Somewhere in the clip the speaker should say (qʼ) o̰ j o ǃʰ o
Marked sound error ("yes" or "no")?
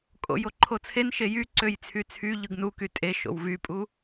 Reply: yes